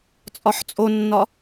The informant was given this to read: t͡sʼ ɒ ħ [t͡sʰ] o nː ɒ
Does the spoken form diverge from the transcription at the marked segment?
yes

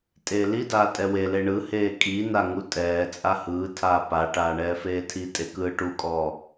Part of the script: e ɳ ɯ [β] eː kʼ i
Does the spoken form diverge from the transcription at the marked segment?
yes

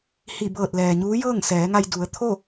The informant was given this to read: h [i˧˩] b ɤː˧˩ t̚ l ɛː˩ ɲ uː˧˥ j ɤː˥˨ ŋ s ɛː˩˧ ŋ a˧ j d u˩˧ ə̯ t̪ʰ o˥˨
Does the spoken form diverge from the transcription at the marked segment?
no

